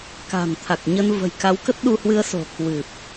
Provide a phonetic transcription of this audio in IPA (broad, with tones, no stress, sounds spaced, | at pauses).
k a̤˨˩ n t̪ʰ a˨˩ k̚ ɲ ə˧ n v ə̤˨˩ j k a˨˦ w k ə˦˥ t̚ ɗ u˧ h w ɨ˧ ə̯ s o̤˨˩ k w ɨ˨˩ p̚